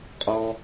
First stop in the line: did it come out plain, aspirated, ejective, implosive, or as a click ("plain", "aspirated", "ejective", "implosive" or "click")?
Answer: ejective